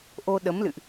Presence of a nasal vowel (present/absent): absent